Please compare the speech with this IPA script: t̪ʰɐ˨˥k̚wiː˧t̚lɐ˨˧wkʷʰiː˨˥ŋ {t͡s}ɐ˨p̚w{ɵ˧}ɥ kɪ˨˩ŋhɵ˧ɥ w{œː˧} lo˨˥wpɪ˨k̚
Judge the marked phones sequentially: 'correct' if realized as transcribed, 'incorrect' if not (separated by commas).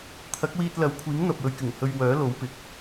incorrect, correct, incorrect